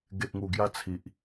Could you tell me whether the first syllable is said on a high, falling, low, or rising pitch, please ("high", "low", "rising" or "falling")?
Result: low